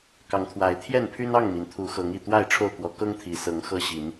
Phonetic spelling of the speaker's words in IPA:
kɑ˨˦ŋt̪ʰwa˨˦ɪ̯t̪ʰjɛ˥˨n pʰy˦nɑ˥˨ŋmi˩n t̪ʰu˨˦xɤ˨˦ŋi˨˩ t̪wa˥˨ɪ̯ ʈ͡ʂʰo˥˨ʊ̯kwɔ˨˦ kɤ˦ŋt̪ʰi˨˩ sɤ˨˦ŋxɤ˦ɕi˨˦n

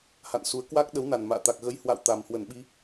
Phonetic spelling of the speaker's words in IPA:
ha̰˧˨nsu˨˦ə̯ kwa˦˥k̚ɗə˨˦w na˨˩nma̰ː˧˨t̪a˨˩k̚ ɣə˨˦jhwa̰˧˨w t̪a˨˩mhwə˧˩nɓi˧

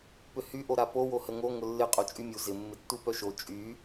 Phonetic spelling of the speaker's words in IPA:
pʏhy ʔoɾapo wohəŋo ŋʊlːɪ qʼot͡ʃʼymʲu zɪ mːɪtːupœʃo t͡ʃʼy

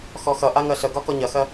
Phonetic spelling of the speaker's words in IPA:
xɔxʌʔa ŋɜɬəɡɒ kɔɲɐxɜ

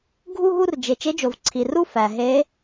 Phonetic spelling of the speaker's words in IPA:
ɡʱu˥˧ɦu˥˧rd͡ʒe˩ t͡ʃe˧˥d͡ʒo˩vǀʰi˩ru˥˧ fæ˩ɦe˧˥

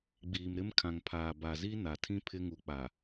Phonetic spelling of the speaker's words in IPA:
ɡ͡biː˨mɾɪ˦mkʰã˨ŋpʰaː˨ ba˨zi˦na˨tʰĩ˦ pʰɪ˦ŋu˨k͡pa˨

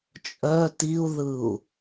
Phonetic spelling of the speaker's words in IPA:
t͡ʃʼœ tiu̯ðɯu̯

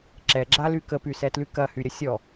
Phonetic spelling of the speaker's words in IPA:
ǁɛɡ͡ǁaly kəpysɛtly kɐhyɾʲə sʲɔ

